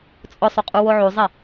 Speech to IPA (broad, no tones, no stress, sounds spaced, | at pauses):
t͡sʼ ʊ sˤ o qʼ u w o ʕ u zˤ ɛ